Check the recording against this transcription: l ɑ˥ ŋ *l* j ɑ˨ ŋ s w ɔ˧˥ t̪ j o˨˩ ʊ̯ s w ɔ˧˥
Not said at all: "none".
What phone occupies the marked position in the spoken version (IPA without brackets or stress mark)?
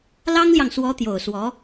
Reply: l